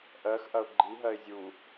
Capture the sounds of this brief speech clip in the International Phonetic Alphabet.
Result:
ʔ ɜ x ʔ ɐ ʊ̯ ɡ͡ǃ i ɦ ɜ ɪ̯ zʲ u

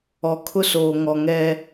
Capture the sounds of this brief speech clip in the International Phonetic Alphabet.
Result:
ɔ˨ kʰ ʊ˦ s oː˨ ŋ ɔ˨ ŋ ɛ˦

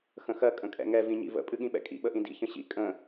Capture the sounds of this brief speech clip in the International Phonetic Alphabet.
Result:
x ə̃ x ɜ kʼ ə̃ kʼ ɛ̰ ŋ ɛ v ĩ ɲ ḭ v ə̰ pʼ ɨ ɠ ĩ ɓ ɛ̰ kʼ ḭ ɓ ə ʔ ĩ d ḭ ç ə̃ ɕ ḭ kʼ ə̃

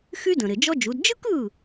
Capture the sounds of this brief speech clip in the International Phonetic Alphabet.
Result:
x y˥ d ə̃˩ ɾ ɪ˩ d͡ʒ ɔ˥ d͡ʒ u˩˥ d d͡ʒ ɯ˥ k ɯ˥˩

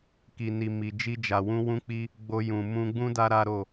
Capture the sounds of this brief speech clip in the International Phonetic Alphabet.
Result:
k i˨ n i˨ m i˨ d͡ʒ i˧ d͡ʒ a˨ w ũ˧ w ũ˦ k͡p i˦ | ɡ͡b o˧ j ũ˨ m ũ˧ ɡ͡b ũ˦ d a˦ ɾ a˦ ɾ o˦˨

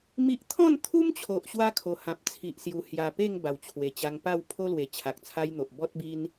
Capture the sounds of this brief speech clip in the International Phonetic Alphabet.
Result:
m i˦ ʔ t̪ʰ ɔ̃˥˧ n t̪ʰ u˦ m t͡ɕʰ o˨ ʔ ɕ w a˦ kʰ o˨˩ h ã˨ p̚ t͡sʰ i˨ ʔ s j u˨˩ h j a˨˩ p e˥˧ ŋ b a˨˩ w t͡ɕʰ w e˨˩ t͡ɕ a˧ ŋ p a˥˧ w pʰ o˦ l w e˨˩ t͡ɕʰ a˨ k̚ t͡sʰ a˦ j n̪ o˨ ʔ b ɔ˦ t̚ b i˦ n

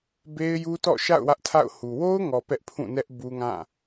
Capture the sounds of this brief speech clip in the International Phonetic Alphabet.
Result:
b e˦ ɪ̯ j u˦ t ɔ̰˦˨ ʃ a̰˦˨ ʊ̯ w ä˦ ʔ tʰ a̰˦˨ ʊ̯ h u˨ w o˦ ʊ̯ ŋ ɔ˨ p ɛ˦ ʔ pʰ ũ˦˨ n ɛ˦ ʔ b u˦ ŋ ã˦˨

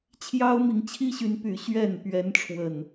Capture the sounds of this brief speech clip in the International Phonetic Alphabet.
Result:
t͡ɕʰ j ɑ˦ ʊ̯ m i˨˦ ŋ t͡ɕʰ i˦ ɕ y˨˦ n p y˨˦ ɕ ɥ ɛ˥˨ n p ɥ ɛ˨˦ n ʈ͡ʂʰ w ə˨˩ n

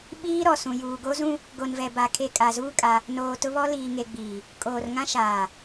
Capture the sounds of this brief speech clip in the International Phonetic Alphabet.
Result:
ɓ iː˦ ɾ ɔ˨ s ũ˨ j uː˨ ɡ o˦ z ũ˦ | ɡ o˨ n v ɛ˨ b a˨ kʰ e˨ kʼ a˨ z uː˦ kʼ a˦ | n oː˨ t ʊ˦ β ɔ˦ l iː˨ ŋ e˨ ɡ͡b iː˨ | kʼ oː˨ r ŋ ã˦ ʃ aː˨

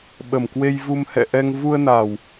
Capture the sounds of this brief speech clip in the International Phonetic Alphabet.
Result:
ɓ ə˨˩ m k w e˧ j v u˧ m h ɛ̰˧˨ ʔ ɛ˧ ŋ v u˧ ə̯ n a˨˩ w

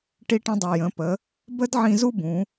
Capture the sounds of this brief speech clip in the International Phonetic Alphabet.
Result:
ʈ i˧ ʈ ə̃˧ dˤ ɯ˩ j ə̃˩˧ p ə˩˧ | b ə˥ d ʕ ĩ˧ z u˥ b ũ˩˧

